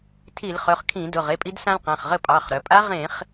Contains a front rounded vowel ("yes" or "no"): yes